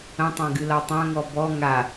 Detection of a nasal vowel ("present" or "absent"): present